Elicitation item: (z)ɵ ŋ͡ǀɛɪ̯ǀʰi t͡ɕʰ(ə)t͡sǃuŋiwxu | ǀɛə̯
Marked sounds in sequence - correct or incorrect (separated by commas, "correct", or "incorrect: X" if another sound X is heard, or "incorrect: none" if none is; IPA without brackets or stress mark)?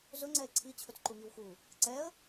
correct, incorrect: ɵ